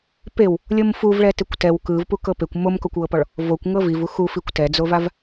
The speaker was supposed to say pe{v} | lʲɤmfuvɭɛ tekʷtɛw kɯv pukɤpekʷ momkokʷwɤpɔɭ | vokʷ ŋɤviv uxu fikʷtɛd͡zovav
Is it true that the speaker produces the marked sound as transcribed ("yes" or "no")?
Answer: no